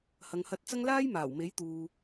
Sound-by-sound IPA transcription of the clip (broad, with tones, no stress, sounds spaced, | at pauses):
h ɐ˨ ŋ h ɐ˧ t̚ t͡s ɐ˥ ŋ l aː˥ j m aː˨˩ w m e˨˥ j t̪ uː˨